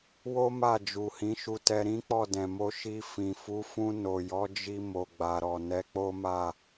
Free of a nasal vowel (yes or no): no